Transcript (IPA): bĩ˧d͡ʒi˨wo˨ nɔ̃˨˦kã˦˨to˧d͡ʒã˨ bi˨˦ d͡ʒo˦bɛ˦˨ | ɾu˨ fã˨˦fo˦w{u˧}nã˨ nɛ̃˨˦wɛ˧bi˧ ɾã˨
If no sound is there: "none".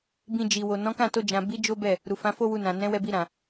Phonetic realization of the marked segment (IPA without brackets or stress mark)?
u˧